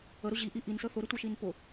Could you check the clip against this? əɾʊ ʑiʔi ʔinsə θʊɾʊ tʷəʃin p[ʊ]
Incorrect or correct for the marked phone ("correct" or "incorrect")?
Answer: correct